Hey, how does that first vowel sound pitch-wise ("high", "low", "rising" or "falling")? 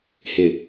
low